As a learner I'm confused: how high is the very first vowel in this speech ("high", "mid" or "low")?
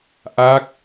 low